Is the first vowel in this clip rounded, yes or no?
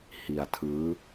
no